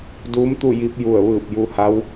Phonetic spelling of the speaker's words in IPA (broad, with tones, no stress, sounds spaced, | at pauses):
d uː˧˥ m t̪ u˥˨ j i˧˥ p̚ j u˧˩ ə̯ ʋ ɯː˧˩ p̚ j u˧ h a˧˥ w